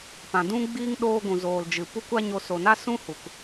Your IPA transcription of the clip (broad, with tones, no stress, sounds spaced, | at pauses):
p ã˨ d ũ˧ ɡ͡b iː˧ ŋ ɗ oː˧ ɡʷ ũ˨ z oː˨ l d͡ʒ ɨ˨ p u˧ kʷ a˧ ɲ o˨ s o˨ n a˦ s ũ˦ h u˨ k